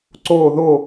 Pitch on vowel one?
falling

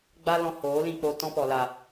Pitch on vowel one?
high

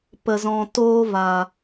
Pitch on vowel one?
low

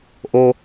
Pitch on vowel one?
low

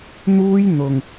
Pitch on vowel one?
high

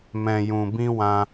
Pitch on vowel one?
low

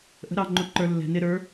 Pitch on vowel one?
rising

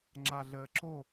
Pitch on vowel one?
low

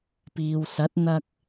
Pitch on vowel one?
low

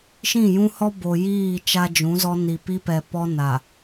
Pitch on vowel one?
falling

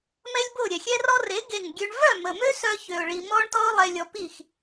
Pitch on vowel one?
high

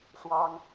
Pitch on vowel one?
high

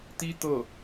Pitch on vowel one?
high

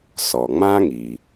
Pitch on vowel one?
low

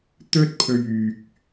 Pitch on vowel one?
high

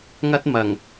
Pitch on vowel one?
high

